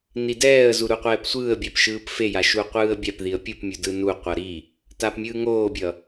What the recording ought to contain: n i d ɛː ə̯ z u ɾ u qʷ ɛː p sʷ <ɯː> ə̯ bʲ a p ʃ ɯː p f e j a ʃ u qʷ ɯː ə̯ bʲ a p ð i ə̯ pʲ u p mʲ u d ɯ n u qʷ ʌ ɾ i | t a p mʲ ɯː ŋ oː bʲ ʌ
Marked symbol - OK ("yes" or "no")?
yes